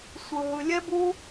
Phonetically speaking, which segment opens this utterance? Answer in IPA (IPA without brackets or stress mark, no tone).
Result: sʷ